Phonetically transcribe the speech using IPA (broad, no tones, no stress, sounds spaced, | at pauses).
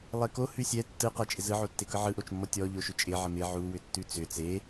lˠ e k o h ʉ sʲ ɛ tː ɯ q ɛ t͡ʃʼ ɪ z ɯ ʕ o tː e k ɯ ʕ ɯ ʔ o t͡ʃ mː ɔ tʲ ɔ ʎ o ʃ ʏ t͡ʃʼ ɪ ʕ ə m ɪ ʕ u w ʏ tː ʉ t͡s ʏ t͡s e